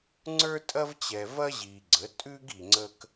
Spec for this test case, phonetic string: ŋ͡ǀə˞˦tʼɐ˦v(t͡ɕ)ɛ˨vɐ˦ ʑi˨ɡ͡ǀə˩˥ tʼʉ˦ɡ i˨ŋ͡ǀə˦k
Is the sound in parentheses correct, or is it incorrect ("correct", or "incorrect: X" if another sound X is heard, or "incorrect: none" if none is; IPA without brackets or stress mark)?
correct